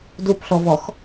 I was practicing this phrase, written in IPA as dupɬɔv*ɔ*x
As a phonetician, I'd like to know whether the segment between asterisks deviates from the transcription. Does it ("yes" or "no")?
no